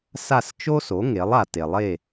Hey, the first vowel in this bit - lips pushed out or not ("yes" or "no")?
no